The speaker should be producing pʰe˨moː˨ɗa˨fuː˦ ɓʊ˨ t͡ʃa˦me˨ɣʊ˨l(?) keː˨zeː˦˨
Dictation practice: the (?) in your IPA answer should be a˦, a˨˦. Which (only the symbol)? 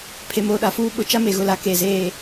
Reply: a˨˦